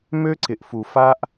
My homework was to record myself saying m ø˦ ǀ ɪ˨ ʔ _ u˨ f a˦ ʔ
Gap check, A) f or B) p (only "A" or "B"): A